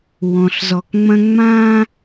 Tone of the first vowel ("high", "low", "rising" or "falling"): low